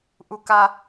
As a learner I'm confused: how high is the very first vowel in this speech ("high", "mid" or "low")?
high